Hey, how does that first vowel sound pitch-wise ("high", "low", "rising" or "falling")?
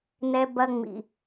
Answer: high